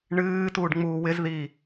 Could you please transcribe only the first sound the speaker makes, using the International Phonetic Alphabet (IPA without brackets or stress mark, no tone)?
ɳ